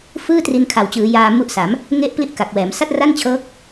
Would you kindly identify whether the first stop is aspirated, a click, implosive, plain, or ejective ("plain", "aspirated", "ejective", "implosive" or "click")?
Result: plain